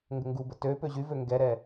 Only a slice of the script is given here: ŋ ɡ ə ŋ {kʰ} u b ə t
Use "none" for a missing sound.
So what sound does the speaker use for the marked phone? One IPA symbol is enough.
ɡ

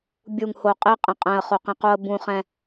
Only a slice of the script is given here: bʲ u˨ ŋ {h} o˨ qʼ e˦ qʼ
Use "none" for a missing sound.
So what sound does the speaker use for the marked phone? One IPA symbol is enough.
h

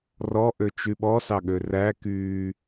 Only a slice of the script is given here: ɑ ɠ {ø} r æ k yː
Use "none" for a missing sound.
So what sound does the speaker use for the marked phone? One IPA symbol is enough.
ø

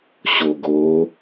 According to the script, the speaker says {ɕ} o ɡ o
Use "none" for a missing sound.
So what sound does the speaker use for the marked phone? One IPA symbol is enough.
ɕ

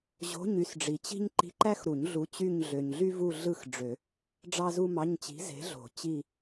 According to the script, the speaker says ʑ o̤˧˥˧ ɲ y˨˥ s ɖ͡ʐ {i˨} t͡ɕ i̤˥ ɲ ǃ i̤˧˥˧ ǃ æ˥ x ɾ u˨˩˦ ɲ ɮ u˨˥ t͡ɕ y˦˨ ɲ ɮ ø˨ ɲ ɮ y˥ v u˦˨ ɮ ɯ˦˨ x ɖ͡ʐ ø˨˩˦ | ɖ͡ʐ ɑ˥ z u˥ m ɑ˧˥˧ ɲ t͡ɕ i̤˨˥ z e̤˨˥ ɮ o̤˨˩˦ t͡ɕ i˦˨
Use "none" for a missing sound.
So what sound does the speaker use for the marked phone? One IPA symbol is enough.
i˨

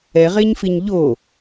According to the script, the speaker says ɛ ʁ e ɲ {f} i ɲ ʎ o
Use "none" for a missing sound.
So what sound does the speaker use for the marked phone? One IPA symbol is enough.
f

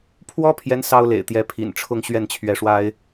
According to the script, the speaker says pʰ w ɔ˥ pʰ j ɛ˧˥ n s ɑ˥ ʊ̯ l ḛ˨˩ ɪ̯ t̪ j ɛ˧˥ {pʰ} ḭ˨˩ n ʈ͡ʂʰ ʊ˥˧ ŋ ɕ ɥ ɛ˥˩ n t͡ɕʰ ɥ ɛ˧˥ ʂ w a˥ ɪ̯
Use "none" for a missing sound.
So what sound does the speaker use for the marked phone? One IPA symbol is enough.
pʰ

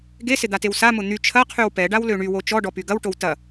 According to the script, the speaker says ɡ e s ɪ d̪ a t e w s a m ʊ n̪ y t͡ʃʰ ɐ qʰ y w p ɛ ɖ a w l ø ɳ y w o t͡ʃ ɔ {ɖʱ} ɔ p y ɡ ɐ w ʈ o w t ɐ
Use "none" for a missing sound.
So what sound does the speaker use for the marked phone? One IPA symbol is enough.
ɖ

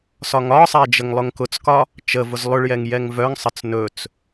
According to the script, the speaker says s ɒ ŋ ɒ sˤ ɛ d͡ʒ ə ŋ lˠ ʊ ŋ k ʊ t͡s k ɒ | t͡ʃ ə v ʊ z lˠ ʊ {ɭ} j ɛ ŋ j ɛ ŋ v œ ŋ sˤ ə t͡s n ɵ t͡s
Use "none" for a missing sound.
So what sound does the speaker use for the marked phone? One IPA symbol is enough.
ɭ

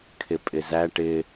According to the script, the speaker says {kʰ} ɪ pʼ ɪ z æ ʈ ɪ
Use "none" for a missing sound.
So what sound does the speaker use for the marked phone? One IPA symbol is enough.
kʰ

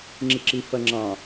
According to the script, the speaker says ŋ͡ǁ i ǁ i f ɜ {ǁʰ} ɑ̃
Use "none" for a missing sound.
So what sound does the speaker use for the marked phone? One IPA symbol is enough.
ŋ͡ǁ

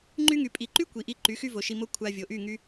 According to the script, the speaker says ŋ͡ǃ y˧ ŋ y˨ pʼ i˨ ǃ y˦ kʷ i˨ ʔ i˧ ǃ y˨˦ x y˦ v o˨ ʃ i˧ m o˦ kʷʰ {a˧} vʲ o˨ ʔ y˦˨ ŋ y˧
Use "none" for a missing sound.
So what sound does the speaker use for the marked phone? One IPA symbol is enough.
a˧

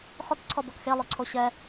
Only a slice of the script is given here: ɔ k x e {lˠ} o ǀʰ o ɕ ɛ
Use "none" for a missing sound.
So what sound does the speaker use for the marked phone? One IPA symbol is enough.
lˠ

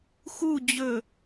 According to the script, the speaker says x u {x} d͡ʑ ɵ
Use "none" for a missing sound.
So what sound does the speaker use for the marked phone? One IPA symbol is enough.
none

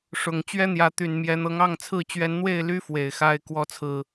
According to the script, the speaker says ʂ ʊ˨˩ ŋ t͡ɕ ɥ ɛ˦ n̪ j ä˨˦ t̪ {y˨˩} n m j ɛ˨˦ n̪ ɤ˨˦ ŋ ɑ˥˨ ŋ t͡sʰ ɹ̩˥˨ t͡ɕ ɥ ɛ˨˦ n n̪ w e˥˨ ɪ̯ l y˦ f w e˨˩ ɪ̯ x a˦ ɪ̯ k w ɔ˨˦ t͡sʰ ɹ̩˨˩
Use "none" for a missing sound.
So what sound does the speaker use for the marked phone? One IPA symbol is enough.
y˨˩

